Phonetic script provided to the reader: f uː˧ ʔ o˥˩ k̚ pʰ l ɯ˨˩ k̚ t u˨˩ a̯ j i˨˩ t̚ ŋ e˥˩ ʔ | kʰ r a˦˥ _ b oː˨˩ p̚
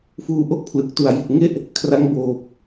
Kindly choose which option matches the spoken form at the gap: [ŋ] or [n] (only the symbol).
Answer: ŋ